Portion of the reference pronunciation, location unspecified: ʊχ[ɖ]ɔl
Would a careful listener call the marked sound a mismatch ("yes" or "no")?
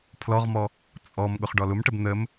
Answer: no